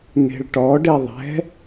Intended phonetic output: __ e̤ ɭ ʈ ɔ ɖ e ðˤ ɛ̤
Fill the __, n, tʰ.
n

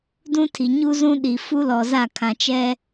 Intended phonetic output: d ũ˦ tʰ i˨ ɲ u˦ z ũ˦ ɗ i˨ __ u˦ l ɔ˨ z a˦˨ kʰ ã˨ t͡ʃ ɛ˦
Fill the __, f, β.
f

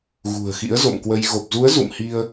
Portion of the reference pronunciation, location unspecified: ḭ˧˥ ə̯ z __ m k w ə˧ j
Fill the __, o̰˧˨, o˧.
o̰˧˨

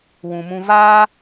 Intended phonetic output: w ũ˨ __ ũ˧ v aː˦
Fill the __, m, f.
m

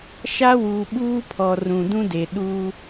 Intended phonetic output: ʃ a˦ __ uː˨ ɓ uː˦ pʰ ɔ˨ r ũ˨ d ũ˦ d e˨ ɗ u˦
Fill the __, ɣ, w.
w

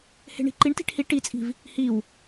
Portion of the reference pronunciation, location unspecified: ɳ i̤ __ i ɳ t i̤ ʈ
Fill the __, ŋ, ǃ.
ǃ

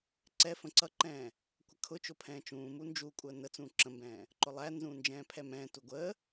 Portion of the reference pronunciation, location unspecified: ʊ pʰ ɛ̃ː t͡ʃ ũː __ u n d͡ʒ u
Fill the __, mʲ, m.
m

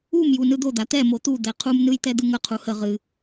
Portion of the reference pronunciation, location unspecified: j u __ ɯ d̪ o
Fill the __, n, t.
n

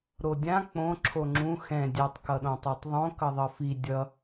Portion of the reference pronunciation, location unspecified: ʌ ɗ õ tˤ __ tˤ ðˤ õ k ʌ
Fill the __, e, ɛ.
e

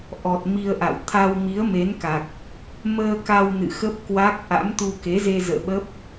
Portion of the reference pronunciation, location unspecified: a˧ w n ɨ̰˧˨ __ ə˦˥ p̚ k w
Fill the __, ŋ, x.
x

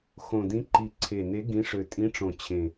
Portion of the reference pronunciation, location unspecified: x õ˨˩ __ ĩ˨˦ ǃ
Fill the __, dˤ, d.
d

